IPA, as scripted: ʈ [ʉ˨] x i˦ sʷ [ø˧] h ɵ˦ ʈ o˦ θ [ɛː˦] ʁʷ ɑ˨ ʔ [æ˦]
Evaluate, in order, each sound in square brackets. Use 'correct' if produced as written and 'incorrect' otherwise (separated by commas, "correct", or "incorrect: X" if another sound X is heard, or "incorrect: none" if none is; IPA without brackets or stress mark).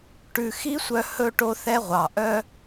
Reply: correct, incorrect: œ˧, incorrect: ɛ˦, incorrect: œ˦